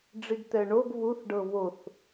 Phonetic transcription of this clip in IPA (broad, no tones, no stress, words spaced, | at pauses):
ɖ͡ʐiɡt̪ɛɳoɡ βuθɖɤ βoθ